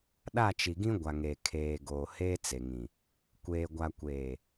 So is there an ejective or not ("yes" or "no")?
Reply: no